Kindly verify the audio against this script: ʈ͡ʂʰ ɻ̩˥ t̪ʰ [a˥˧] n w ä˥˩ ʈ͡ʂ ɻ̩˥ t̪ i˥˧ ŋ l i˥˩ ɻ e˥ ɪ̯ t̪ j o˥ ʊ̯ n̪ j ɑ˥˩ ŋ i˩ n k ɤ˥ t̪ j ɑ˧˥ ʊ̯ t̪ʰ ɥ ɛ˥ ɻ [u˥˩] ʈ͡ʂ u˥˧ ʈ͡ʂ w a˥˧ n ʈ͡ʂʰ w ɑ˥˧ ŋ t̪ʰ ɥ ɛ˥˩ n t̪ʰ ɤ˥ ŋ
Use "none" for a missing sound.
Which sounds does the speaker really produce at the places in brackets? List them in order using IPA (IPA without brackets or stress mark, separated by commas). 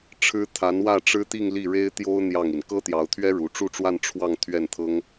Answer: a˧˥, u˧˥